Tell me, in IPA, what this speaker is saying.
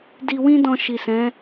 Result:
d i˧ w ĩ˦ d ɔ̃˧ ʃ i˨ s ɛ̃˨˦

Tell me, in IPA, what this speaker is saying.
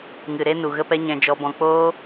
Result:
ŋ ɨ˨ ɾ e˧ n u˨ ɣ ə˧ p ɛ˧ ɲ ɛ̃˧ d͡ʒ ɔ˧ b ɔ̃˧ k͡p oː˦

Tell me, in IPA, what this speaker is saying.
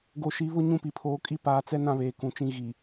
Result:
ɡ o˨ ʃ i˨˦ β ʊ˦ ɲ ũ˦˨ p i˨ pʰ oː˨ kʼ i˦ p aː˨ t͡s ɛ˦ n ã˦ β eː˨ k ũ˨ t͡ʃ ĩ˦ ɣ i˨

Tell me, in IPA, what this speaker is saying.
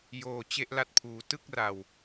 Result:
j oː˨˩ t͡ɕ e˦˥ ʔ l a˦˥ t̚ pʰ uː˩˦ t ɯ˥˩ k̚ r a˨˩ w

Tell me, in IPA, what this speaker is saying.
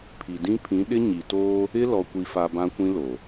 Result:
pʰ i˨ d ĩ˦ pʰ ĩ˨˦ ɗ ɪ˦ ɲ i˨ t oː˦ | ɪ˦ l ɔ˨ kʷ i˨ f a˨ b ã˦ kʷ ĩ˦ l o˨

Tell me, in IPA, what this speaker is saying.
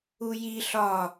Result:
u j i ɬ ɒ

